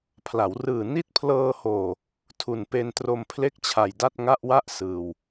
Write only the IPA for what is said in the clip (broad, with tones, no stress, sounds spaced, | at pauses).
pʰ l a˩˦ w r ɯː˨˩ n i˦˥ t̚ pʰ l ɤː˧ h oː˨˩ | tʰ u˨˩ n p e˧ n t r o˧ m pʰ l e˥˩ k̚ t͡ɕʰ a˨˩ j d a˥˩ t̚ ŋ a˥˩ ʔ w a˥˩ ʔ s ɯː˨˩ w